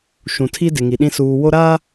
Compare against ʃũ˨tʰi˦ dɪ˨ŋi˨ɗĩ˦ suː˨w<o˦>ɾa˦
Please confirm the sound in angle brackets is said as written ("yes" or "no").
yes